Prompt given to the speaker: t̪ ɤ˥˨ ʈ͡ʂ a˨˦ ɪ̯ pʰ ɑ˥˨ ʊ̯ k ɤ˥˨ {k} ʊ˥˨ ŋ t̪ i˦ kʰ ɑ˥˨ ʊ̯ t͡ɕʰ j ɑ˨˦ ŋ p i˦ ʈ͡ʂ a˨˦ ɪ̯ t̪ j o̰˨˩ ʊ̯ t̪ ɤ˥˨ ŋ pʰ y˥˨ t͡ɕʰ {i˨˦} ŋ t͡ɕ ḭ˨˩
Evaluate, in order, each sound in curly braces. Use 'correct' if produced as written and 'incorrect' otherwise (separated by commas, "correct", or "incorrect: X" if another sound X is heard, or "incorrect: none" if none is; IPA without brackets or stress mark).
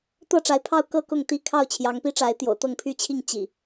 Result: correct, incorrect: i˥˨